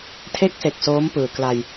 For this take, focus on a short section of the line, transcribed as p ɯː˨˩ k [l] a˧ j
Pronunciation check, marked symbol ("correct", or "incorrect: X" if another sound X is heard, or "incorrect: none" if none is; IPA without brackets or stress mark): correct